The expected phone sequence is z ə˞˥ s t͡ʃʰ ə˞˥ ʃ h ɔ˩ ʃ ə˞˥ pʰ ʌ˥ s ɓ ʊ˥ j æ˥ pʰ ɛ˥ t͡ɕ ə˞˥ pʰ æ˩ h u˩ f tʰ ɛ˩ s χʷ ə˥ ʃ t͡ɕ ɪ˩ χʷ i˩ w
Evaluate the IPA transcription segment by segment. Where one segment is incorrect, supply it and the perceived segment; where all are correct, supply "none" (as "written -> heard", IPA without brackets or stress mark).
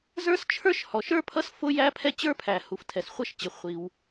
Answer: ɓ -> f